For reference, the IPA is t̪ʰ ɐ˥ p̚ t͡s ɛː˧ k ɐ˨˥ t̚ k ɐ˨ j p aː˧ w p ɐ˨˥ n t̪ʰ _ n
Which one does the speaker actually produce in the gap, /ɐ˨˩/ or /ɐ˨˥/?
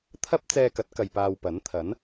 ɐ˨˥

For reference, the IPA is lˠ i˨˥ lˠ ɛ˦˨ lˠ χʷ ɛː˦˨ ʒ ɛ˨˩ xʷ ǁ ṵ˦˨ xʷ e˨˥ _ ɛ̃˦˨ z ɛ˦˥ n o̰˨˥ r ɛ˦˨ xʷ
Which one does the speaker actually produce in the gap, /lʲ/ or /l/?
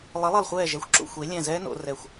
lʲ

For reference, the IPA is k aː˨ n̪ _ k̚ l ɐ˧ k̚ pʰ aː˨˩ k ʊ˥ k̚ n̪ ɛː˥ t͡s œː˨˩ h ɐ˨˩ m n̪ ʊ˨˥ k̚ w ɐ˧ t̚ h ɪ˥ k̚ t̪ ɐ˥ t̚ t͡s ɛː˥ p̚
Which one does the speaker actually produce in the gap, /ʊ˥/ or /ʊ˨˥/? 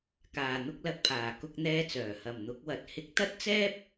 ʊ˥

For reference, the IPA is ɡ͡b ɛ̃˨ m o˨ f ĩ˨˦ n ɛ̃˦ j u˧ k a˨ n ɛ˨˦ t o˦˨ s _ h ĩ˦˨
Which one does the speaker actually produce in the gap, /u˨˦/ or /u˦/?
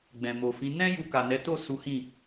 u˨˦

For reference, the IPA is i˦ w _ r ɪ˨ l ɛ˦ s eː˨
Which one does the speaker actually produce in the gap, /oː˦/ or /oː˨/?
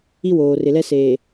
oː˨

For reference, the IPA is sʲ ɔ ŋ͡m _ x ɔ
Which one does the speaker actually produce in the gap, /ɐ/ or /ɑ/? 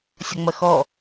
ɐ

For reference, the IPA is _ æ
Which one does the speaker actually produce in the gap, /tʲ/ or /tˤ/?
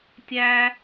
tʲ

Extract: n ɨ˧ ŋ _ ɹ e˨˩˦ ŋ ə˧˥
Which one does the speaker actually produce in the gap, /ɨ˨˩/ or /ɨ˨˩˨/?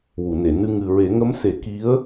ɨ˨˩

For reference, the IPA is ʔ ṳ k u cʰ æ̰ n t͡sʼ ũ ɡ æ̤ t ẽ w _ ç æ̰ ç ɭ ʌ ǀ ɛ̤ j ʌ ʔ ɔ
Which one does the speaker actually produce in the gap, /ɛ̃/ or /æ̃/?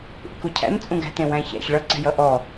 æ̃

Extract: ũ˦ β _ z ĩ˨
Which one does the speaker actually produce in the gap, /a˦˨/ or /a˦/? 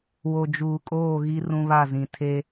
a˦˨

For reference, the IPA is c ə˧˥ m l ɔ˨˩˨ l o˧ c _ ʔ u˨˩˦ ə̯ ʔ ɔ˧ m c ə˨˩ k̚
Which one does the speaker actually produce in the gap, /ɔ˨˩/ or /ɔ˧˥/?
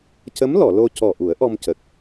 ɔ˨˩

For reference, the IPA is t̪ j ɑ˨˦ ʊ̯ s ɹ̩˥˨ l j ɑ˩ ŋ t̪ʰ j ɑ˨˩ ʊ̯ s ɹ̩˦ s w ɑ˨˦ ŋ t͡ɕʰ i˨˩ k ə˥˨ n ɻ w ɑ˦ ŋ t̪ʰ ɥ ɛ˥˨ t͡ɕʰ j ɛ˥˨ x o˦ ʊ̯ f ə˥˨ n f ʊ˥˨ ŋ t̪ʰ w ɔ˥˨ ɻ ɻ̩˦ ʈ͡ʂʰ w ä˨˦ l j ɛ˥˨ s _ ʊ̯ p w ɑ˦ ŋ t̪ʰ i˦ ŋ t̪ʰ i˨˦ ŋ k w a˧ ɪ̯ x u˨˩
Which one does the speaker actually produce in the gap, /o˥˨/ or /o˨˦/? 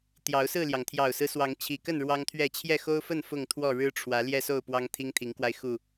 o˥˨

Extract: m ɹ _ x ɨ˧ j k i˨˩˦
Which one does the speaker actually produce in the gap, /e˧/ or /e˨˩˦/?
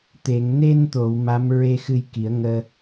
e˧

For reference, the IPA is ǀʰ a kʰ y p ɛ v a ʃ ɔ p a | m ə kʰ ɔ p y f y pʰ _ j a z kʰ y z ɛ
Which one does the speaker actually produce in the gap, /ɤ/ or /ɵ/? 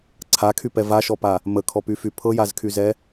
ɤ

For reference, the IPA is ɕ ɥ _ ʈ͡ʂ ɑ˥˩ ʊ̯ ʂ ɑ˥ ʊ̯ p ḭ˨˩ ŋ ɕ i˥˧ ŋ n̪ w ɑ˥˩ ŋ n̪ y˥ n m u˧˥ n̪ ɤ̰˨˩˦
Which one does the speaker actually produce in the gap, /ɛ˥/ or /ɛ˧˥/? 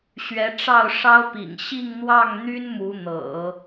ɛ˧˥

